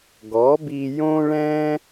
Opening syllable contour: rising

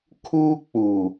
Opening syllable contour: high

